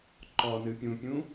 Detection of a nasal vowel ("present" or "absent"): present